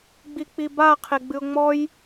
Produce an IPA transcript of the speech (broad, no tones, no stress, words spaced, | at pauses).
ɡ͡bik͡piba qʰeɡ͡bɨʊ̯ŋ͡mɔj